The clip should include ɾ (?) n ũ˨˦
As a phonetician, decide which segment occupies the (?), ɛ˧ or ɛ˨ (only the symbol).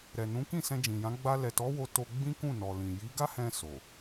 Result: ɛ˨